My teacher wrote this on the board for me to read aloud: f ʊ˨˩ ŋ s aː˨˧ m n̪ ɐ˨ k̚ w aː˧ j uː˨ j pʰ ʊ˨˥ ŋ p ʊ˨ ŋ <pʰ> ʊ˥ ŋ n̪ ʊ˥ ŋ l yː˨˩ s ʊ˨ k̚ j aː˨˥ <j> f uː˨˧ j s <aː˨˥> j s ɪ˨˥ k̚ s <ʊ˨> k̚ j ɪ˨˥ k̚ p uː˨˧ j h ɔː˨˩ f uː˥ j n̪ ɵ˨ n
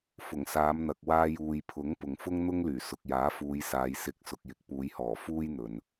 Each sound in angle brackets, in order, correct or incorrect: incorrect: f, incorrect: none, incorrect: aː˨˧, correct

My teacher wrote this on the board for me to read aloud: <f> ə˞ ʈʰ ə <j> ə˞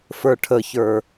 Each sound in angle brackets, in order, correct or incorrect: correct, incorrect: ç

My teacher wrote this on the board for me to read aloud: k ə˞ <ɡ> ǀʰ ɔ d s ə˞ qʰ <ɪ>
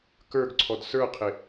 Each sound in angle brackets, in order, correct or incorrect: correct, correct

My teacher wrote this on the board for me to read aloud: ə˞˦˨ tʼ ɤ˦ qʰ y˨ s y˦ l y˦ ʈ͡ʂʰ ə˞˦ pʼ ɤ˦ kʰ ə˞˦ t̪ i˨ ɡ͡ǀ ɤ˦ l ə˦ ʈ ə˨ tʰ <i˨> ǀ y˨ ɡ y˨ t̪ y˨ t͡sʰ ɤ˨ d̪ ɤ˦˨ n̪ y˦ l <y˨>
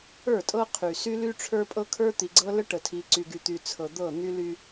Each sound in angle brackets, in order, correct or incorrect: correct, incorrect: y˦

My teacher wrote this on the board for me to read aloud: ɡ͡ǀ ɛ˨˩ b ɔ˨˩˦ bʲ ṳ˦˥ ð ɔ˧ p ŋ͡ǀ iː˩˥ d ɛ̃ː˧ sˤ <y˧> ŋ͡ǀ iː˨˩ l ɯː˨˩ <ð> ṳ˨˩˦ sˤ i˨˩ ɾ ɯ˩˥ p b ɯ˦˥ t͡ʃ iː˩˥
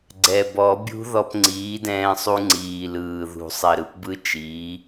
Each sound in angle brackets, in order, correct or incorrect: incorrect: u˧, correct

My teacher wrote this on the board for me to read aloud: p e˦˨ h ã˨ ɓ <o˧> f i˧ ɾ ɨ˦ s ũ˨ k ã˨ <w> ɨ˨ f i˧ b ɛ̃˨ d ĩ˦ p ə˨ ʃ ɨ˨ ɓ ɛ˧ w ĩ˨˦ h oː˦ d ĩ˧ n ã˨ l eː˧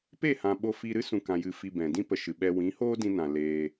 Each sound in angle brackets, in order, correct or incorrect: correct, incorrect: j

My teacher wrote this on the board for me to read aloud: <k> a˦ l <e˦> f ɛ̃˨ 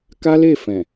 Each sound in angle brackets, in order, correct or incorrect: correct, incorrect: e˦˨

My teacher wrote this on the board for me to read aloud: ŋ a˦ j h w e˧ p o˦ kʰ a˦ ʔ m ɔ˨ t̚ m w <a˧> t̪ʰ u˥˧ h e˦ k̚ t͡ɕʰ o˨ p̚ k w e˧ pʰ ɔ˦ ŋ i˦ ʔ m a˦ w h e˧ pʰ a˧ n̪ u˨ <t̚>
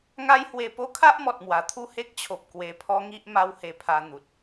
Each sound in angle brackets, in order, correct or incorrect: incorrect: a˨˩, correct

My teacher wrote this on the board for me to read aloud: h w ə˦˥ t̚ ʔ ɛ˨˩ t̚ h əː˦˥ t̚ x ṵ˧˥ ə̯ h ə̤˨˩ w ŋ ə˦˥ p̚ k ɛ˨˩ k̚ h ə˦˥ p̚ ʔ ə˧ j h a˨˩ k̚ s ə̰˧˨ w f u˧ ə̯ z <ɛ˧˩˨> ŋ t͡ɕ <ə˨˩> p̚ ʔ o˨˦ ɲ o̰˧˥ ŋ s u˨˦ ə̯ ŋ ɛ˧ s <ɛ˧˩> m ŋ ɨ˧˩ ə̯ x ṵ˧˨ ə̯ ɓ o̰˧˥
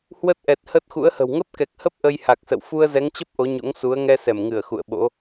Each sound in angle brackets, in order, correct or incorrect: incorrect: ɛ˨˦, incorrect: ə˦˥, correct

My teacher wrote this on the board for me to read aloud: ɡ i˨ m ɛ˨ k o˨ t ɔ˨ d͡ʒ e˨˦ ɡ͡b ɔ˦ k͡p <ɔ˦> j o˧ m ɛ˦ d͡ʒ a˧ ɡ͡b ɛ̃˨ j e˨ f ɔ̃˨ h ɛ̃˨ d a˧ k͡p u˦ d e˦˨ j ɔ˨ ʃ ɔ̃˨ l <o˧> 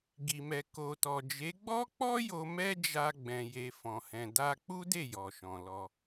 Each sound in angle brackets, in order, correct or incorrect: correct, incorrect: ɔ˧

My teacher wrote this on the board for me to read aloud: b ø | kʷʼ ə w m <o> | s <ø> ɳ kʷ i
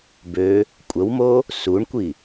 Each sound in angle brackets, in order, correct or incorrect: correct, incorrect: u

